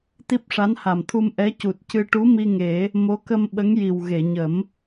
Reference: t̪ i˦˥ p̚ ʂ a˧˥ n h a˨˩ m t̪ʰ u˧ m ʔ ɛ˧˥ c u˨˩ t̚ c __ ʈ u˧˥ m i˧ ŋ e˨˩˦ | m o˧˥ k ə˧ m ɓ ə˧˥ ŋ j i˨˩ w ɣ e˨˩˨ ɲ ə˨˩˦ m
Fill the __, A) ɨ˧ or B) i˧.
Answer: A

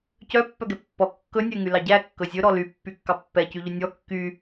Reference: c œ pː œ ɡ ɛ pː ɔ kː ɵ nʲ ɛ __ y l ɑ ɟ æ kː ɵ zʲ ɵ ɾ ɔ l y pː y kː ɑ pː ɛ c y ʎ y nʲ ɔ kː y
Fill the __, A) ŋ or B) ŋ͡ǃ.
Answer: A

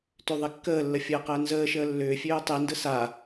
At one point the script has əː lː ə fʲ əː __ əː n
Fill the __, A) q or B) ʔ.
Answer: A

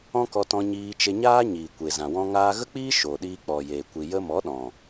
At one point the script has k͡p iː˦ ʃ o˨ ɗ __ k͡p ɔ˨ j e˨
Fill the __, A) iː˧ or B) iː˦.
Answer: A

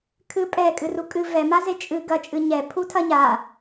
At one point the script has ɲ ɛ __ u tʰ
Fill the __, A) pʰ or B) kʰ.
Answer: A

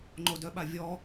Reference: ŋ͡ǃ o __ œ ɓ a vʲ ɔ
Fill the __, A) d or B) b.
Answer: A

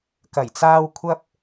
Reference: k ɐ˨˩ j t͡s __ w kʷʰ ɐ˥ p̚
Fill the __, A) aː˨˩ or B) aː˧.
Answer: B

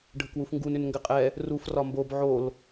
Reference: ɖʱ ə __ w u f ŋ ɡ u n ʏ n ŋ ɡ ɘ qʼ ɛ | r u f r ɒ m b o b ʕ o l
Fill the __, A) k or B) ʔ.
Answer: A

